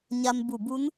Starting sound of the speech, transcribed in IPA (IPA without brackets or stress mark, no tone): ɲ